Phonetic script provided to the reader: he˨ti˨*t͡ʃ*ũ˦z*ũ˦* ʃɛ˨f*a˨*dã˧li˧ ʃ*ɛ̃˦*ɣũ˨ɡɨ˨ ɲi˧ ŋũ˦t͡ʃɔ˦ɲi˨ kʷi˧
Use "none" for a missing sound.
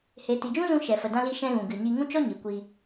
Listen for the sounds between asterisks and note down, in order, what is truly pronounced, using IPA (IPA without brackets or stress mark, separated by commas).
d͡ʒ, ũ˧, ə˨, ɛ̃˧